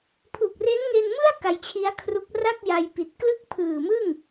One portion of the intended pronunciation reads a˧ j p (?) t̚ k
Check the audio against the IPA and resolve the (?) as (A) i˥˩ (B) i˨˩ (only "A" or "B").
B